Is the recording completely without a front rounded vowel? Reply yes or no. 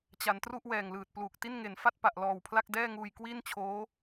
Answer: yes